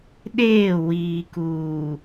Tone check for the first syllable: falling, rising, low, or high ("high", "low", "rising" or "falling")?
falling